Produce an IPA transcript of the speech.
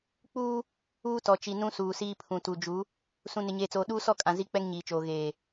k͡p uː˦ | uː˦ t ɔ˨ t͡ʃ i˨ n ũ˦ s uː˨ s iː˦ pʰ ũ˨ t u˨ d͡ʒ u˨˦ | s ũ˨ n ɪ˨ ɲ eː˨ t͡s oː˨ ɗ uː˦ s ɔ˦˨ kʼ ã˨ z i˦ k͡p ɛ˦ ŋ ɲ iː˨ t͡ʃ oː˨ ɣ eː˨

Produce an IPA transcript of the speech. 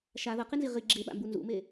ʃ a ð ʌ q i n z i ʁ i ɡ͡ǁ e ɓ a̰ m b u n z ṵ m e

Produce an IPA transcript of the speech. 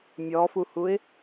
mʲ ɔ f u h u ɪ̯

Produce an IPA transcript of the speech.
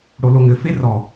ɽ o l o ŋ ɘ f e r ɔ

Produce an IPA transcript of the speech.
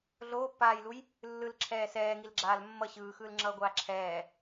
ɮ oː pː aː j l u j | lː ɯ l ǁʰ ɛː s ɛː ŋ i l ɡ͡ǁ aː l mː ʌ ɕ ɯː x ɯː l ŋ͡ǁ ʌː ɡʷ aː ǁʰ ɛː

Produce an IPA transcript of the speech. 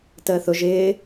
t əː θ ʊ ʒ ɪː

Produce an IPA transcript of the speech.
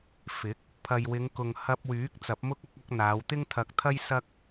f ɪ˨˥ k̚ | pʰ ɐ˨ j w ɪ˨˧ ŋ k ʊ˨ ŋ h ɐ˧ p̚ w yː˨˥ k̚ t͡s ɐ˨˥ p̚ m ʊ˥ k̚ ɐ˥ k̚ ɐ˥ k̚ n̪ aː˨˧ w t̪ ɪ˥ ŋ t̪ʰ ɐ˧ k̚ t̪ʰ ɐ˥ j s ɐ˥ k̚

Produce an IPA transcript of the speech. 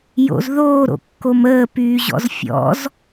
j o̰ z ð oː ɾ o̰ kː o m əː p yː ʑ ɔ̰ z fʲ ɔ̰ z

